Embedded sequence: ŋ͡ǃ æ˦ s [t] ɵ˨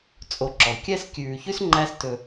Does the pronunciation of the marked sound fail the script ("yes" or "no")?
no